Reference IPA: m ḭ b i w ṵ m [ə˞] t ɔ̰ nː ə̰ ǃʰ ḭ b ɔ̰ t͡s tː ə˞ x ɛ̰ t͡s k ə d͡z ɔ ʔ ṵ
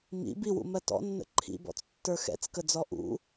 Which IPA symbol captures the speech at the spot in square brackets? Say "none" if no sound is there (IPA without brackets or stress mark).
ɜ